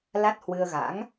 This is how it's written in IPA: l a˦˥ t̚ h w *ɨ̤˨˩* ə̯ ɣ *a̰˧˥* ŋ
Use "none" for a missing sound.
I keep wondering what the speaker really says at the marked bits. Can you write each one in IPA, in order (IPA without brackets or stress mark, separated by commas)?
ɨ˧, a̰˧˥